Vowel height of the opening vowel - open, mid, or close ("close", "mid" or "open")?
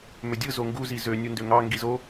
mid